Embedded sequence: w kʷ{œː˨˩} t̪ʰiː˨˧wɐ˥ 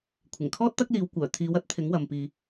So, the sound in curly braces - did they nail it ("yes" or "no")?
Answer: yes